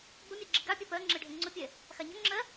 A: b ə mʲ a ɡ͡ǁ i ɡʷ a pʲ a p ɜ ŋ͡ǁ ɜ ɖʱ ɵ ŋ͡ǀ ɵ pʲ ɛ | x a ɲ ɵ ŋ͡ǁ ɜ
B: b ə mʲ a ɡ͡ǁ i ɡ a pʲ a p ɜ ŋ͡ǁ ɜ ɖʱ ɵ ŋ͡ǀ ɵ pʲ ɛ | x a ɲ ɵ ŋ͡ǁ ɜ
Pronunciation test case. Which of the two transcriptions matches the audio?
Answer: B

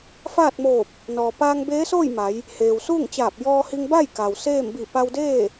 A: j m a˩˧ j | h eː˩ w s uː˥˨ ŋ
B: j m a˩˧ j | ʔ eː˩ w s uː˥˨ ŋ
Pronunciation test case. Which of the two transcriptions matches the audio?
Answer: A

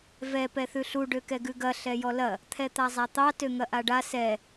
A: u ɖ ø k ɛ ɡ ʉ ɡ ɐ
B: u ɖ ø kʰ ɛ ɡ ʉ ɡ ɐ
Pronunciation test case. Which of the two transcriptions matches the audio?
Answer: A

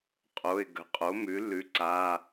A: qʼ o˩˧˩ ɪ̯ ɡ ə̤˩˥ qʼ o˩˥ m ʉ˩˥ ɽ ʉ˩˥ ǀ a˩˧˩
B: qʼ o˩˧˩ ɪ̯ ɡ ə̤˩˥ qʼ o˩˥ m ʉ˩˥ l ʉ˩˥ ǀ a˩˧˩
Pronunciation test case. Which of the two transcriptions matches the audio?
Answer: B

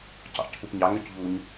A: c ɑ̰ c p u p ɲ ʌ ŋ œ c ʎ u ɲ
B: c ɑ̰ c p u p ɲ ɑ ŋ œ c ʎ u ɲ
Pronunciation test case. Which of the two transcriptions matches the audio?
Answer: B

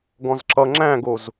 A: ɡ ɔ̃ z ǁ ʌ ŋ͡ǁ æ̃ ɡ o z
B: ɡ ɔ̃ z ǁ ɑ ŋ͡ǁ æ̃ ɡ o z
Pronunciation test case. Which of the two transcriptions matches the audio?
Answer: A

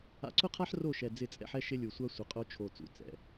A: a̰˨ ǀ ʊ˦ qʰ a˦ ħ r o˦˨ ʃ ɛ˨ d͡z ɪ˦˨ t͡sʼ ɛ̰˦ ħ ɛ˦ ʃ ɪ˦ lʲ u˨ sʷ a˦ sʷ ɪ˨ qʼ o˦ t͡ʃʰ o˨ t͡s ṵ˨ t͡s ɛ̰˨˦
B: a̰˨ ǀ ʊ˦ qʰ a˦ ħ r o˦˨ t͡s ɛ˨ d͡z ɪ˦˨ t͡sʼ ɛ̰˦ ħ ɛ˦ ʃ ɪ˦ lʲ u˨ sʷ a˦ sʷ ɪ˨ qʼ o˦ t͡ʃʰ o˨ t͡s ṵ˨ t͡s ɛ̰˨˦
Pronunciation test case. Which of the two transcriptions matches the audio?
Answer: A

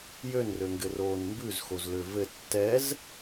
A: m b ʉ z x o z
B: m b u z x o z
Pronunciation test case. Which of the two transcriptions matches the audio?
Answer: A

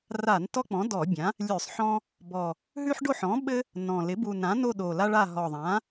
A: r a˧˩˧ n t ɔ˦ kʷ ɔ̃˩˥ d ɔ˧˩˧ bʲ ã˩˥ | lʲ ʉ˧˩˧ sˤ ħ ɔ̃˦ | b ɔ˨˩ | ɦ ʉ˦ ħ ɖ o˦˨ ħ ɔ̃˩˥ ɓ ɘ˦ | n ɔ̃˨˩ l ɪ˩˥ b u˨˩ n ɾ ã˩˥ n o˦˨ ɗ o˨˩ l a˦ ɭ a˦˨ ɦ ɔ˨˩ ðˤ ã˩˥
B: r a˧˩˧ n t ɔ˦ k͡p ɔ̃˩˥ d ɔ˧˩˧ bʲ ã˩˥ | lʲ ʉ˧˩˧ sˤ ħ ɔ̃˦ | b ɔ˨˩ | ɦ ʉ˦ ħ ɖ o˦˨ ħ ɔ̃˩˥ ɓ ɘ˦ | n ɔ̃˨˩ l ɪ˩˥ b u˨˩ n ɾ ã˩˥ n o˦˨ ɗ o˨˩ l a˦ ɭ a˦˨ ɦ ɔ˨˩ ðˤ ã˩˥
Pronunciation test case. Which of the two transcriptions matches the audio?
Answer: B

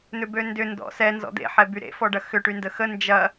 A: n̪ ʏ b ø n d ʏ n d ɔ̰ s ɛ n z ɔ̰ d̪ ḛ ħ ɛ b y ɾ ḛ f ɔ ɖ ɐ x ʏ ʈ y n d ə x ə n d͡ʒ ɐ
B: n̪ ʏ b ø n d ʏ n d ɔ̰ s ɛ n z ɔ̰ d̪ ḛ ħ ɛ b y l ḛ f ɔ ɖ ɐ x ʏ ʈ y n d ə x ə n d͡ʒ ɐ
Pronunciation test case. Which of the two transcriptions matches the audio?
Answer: A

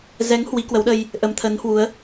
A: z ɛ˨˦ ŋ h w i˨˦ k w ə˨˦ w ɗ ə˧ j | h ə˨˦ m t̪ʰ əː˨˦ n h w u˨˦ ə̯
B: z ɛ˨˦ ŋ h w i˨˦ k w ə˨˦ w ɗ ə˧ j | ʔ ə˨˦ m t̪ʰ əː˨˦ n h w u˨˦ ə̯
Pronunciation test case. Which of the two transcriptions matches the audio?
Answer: B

